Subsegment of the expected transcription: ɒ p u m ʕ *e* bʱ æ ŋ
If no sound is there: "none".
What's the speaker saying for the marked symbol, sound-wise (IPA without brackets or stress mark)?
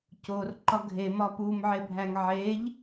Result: e